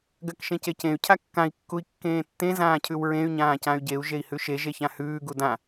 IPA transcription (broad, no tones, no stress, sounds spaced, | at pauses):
ɡ ɜ k ʃ ẽ c e c ẽ y̯ cʰ a kː ã i̯ kː u i̯ kː ẽː tː ẽ z ãː cʰ ʉ w ɹ ẽ y̯ ɲ ãː c ã y̯ ɟ e u̯ ʒ e i̯ h ʉ ʃ e ʒ e ç ã h ʉː ɡ u d ã